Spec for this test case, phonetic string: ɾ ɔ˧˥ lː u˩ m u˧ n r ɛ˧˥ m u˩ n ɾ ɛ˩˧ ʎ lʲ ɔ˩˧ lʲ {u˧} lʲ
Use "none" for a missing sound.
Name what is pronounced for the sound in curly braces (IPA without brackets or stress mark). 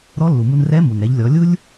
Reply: u˥